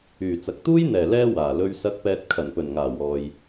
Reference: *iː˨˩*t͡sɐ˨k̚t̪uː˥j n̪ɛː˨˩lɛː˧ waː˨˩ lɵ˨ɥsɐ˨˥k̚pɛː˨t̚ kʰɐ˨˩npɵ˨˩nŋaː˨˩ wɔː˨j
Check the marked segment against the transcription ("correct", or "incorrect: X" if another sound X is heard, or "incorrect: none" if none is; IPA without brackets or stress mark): incorrect: yː˨˩